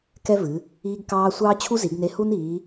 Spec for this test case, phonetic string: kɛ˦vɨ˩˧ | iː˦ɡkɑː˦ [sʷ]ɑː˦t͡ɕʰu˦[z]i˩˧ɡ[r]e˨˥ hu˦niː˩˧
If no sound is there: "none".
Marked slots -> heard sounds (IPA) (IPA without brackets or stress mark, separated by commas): sʷ, z, n